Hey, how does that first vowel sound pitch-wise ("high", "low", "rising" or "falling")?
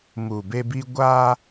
low